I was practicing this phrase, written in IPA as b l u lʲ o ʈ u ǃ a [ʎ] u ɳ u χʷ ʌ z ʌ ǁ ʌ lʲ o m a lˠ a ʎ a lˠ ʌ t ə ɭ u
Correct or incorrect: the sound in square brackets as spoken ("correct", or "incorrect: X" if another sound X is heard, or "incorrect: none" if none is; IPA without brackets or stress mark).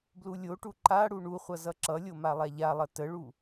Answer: incorrect: ɽ